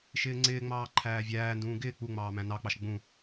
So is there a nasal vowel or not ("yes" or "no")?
yes